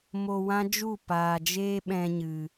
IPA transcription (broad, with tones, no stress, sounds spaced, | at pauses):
m o˧ w ã˦ d͡ʒ u˦˨ p aː˨ d͡ʒ eː˦ ɓ ɛ̃˧ ɲ ɨ˨